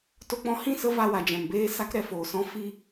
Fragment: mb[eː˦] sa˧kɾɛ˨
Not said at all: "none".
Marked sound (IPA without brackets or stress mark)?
eː˦